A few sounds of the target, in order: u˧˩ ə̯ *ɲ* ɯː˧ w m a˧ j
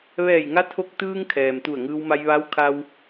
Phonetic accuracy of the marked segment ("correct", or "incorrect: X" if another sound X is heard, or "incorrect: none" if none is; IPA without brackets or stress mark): incorrect: ŋ